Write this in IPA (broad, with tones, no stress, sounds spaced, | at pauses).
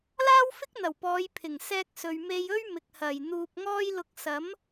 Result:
l aː˥ w f ɪ˥ k̚ n̪ ɐ˨˩ w p ɔː˨˧ j pʰ ɪ˨˩ ŋ s ɛː˧ k̚ s ɵ˨ ɥ m e˧ j ɵ˥ ɥ m ɪ˨ k̚ h ɐ˨˩ j n̪ uː˧ p̚ ŋ ɔː˥ j l ʊ˧ k̚ s ɐ˨˥ m